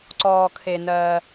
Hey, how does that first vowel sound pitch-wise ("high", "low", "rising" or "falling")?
low